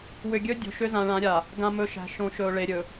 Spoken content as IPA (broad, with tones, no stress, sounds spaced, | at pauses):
w ʏ˨ ɡʲ ɵ˦ dʲ o̤˨ ʃ ʏ˦ z ã˨ ɭ ã˨˦ ɾʲ a˨ | ɡ ã˨ m ɵ˨ ʃ æ̤˨ ʃ õ˨ ʃ ɵ˨ ʊ̯ ɭ e˨ ɾʲ ɵ˨